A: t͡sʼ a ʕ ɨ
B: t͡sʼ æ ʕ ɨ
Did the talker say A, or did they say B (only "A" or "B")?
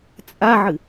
A